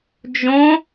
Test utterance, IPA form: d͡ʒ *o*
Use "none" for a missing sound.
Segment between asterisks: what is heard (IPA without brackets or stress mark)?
õ